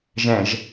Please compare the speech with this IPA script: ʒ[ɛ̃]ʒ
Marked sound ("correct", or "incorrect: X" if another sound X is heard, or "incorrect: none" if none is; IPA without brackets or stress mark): correct